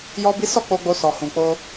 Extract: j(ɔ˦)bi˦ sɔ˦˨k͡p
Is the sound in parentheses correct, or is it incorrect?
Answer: correct